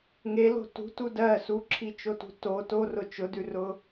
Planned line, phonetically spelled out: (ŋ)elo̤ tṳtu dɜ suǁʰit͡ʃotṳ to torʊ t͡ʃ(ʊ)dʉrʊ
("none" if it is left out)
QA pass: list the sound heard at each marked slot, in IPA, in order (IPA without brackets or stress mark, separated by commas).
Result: ŋ, ʊ